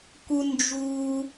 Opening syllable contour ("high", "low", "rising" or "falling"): high